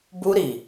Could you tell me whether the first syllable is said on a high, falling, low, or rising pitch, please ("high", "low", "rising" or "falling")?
high